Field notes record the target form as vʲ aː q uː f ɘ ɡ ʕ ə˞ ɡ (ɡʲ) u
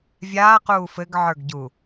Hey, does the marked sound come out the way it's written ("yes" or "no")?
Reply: no